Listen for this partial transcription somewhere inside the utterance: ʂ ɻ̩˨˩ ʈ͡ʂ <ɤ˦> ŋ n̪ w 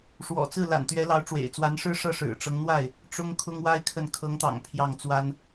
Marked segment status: correct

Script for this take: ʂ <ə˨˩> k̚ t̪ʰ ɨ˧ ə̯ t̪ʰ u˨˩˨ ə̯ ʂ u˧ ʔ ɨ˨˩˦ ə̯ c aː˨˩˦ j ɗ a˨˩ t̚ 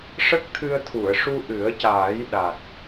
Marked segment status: incorrect: ə˦˥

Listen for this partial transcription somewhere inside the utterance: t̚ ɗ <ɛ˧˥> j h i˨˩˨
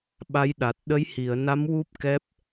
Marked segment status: incorrect: ə˧˥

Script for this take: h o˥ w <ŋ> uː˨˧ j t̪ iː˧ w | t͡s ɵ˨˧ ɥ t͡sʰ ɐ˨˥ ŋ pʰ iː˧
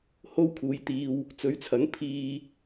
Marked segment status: incorrect: kʰ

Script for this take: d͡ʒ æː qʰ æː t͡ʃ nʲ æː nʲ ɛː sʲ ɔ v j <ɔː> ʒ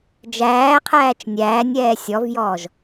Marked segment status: correct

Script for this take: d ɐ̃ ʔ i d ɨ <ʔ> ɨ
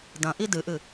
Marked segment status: correct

